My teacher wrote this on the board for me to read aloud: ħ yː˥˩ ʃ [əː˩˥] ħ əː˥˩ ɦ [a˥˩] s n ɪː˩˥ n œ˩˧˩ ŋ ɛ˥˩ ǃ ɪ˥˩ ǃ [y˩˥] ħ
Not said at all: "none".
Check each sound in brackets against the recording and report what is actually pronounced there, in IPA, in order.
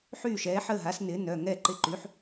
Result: ɛː˩˥, a˩˥, y˩˥

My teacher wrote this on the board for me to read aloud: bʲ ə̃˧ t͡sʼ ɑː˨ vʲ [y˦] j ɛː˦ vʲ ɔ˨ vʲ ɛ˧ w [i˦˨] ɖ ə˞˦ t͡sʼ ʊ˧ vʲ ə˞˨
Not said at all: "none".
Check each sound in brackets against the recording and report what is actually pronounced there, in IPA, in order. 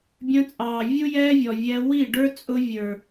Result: u˦, i˦˨

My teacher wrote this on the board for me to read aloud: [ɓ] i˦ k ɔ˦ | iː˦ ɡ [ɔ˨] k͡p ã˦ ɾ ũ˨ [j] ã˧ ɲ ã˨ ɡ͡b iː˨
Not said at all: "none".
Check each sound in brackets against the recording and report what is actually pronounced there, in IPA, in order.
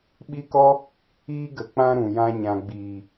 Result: ɓ, ə˨, j

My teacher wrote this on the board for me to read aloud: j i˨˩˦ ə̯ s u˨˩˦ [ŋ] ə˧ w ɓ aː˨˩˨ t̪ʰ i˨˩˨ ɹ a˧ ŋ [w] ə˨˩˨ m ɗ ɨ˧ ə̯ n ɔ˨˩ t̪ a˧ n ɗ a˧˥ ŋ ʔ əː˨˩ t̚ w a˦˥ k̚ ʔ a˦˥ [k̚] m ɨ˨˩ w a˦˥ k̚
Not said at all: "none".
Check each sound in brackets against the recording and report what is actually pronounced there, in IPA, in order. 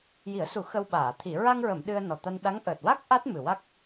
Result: x, ɹ, t̚

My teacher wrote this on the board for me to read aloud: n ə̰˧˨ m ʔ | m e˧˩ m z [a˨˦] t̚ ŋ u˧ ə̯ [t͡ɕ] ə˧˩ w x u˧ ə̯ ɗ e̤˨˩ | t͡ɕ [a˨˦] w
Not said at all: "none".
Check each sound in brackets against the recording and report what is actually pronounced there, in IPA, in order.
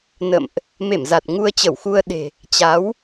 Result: a˨˩, t͡ɕ, a˨˦

